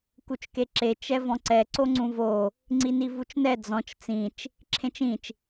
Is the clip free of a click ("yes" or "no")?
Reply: no